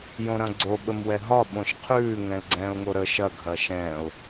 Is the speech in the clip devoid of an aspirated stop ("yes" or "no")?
no